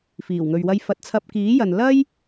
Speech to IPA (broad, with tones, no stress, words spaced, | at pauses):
fiː˨˩wŋɵ˨ɥwɐ˧j fɐ˨˥t̚t͡sʰɐ˧p̚ kiː˨˥jɐ˨n lɐ˥j